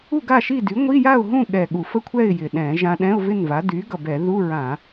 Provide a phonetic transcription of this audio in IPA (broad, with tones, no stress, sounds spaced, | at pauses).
u˥˨ ɡ a˥˨ ʃ i˥˨ d y˩˥ ŋʷ i˧˥˧ j a˥˨ ʊ̯ ɦ ũ˥˨ ɠ ɛ˨˩ ɠ u˧˩˧ f ə˥˨ kʷʰ ɛ˥˨ ɪ̯ j ɪ˨˩ ɗ ɛ̃˧˩˧ ʒ ã˧ ɗ ɛ̃˧˥˧ ʊ̯ v ɪ˥˨ n v a˩˥ d y˩˥ ɡ ʌ˨˩ b ɛ˧˩˧ ð u˧˥˧ ɹ ã˧˩˧